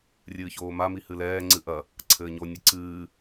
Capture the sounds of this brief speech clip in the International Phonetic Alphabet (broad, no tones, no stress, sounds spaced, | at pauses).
rʲ ɨː ç oː m a m i h ɨ l ɛː ŋ͡ǀ ɨ ʔ ɐ | ǀʰ ɘː ɲ o nʲ ɘ ǀ ɨː